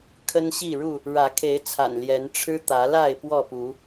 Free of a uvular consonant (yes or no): yes